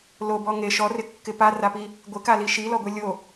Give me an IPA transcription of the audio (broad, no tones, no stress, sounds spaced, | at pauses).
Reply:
l o b ɔ ŋ e ʃ ɔ r ɪ kː ɪ p a r a p i | ɡʷ ɪ k a l i ʃ i l ɔ ɡʷ ɛ lʲ o